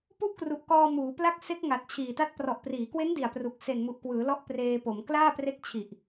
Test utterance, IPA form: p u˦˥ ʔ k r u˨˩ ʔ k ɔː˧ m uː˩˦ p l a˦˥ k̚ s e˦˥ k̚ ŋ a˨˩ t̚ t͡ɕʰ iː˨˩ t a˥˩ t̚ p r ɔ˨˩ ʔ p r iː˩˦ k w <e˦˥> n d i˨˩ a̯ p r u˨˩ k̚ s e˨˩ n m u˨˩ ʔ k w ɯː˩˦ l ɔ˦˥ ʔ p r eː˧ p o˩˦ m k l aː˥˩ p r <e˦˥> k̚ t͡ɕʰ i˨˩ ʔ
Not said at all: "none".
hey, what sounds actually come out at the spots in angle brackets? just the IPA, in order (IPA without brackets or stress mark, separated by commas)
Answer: e˦˥, e˦˥